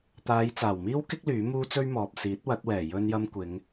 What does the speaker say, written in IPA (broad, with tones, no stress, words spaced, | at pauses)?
t̪aː˨˧jt͡saː˨˩wmiː˥w kɪ˥k̚ lyː˨˥muː˥t͡sɵ˥ɥmɔː˨p̚ siː˨˥t̚wɐ˨˥t̚wɛː˨˩ jɵ˧njɐ˧m kʷɪ˨˧ŋ